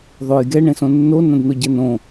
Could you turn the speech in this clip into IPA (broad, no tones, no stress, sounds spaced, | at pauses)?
ðˤ o j ɡ ɛ ɳ ẽ s õ nː o n ɐ̃ d n o ɟ ɛ n õ